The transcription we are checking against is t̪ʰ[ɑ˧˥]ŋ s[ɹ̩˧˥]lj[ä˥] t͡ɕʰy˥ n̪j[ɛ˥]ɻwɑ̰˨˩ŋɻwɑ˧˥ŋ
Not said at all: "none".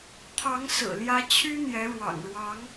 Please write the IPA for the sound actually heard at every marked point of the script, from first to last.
ɑ˧˥, ɹ̩˨˩, ä˥, ɛ˧˥

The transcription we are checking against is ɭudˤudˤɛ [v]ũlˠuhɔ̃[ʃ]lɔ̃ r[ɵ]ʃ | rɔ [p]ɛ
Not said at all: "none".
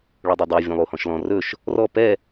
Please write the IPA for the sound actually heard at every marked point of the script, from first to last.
vʲ, ʃ, ɵ, p

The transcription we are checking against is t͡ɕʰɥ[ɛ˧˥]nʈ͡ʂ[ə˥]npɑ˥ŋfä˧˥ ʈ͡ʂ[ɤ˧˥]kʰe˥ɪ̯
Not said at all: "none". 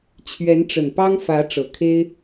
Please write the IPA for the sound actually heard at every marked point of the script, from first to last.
ɛ˧˥, ə˨˩, ɤ˨˩

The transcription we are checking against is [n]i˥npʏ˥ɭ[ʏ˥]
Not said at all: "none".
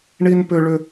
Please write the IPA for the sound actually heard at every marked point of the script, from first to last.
ɳ, ʏ˥

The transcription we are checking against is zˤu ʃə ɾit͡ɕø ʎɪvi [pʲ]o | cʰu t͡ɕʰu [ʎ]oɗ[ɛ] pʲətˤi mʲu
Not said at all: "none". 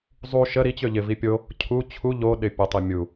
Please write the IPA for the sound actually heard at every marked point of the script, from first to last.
pʲ, ʎ, ɪ

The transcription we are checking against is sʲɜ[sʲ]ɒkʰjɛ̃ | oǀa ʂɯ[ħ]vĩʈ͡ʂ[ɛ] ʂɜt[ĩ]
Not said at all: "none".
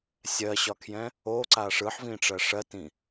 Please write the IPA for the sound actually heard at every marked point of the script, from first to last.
ɕ, ħ, ɜ, ĩ

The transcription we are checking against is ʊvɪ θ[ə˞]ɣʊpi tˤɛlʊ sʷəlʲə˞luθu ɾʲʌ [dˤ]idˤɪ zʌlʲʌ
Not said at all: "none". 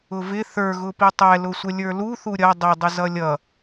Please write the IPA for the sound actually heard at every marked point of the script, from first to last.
ə˞, dˤ

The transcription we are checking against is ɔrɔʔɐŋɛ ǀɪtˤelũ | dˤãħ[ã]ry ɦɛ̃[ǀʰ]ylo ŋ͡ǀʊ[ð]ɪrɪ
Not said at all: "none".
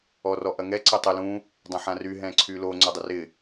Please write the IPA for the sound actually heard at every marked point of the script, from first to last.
ã, ǀʰ, dˤ

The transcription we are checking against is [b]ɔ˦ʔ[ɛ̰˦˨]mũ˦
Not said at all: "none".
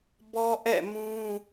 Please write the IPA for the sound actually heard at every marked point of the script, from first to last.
b, ɛ̰˦˨

